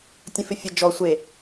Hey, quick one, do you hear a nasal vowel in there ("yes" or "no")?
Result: yes